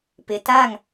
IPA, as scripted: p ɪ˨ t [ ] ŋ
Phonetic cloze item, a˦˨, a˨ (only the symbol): a˦˨